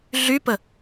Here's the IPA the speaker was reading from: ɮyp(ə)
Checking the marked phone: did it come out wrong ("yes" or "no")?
no